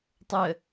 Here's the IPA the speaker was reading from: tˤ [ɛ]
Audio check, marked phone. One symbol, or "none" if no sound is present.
ə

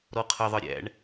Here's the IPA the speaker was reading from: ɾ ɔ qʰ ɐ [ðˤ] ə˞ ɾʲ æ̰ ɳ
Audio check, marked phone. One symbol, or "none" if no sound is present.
ðˤ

